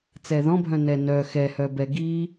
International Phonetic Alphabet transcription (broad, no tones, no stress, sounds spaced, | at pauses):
t͡s ɛ ð ɔ̃ bʱ œ̃ n ɛ n œ x ɛ h œ b ɛ ɡ i